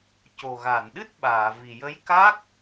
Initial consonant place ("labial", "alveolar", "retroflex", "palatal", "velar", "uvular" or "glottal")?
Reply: palatal